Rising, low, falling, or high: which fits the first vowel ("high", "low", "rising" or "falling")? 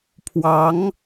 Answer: rising